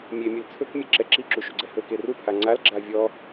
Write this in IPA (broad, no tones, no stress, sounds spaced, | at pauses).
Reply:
mʲ e mʲ ɵ l t͡sʰ ɵ k mʲ ɛ ǁ ɛ ǁ i ǁ u ʃ u ɡ͡ǀ ɛ h ɵ k e r u pʰ a ŋ͡ǀ a l ɡ͡ǁ a vʲ ɔ